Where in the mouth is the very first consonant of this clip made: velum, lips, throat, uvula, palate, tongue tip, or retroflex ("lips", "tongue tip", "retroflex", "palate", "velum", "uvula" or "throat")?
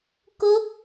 velum